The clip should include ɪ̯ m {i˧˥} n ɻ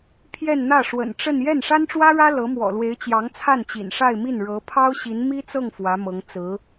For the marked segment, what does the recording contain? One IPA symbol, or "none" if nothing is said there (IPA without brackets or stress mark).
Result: i˥˩